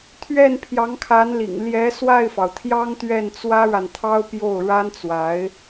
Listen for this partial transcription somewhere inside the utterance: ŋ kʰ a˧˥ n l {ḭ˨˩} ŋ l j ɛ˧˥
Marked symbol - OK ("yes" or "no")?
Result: yes